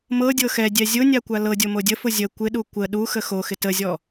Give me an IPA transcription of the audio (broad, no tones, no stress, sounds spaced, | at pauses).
m ɤ dʲ ɤ x ɛ dʲ ɛ zʲ ʊ nʲ a kʷ a l ɤ dʲ o m o dʲ ə f ʊ zʲ ə kʷ ɪ ɗ u kʷ ə ɗ u x ə x o x ɪ t ə zʲ ɔ